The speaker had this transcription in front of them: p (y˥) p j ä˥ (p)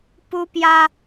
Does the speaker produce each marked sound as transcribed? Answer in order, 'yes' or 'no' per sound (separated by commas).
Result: no, no